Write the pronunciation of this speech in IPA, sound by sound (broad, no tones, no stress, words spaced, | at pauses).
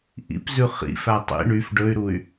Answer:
ʔḭpzʉ χḭfæ tˤḭ ɳyf ɖɵy̯ɾuy̯